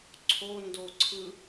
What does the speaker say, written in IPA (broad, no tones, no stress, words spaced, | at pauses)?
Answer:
ǀʰondo ǀʰɯ